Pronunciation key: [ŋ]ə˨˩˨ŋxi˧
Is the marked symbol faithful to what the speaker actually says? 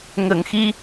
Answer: yes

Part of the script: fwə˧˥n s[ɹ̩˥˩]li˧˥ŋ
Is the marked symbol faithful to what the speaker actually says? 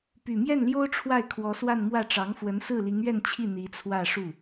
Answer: yes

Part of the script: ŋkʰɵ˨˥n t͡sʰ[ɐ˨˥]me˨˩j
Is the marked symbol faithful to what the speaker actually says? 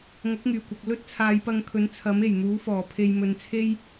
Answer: yes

